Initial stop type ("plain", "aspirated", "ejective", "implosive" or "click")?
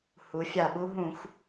implosive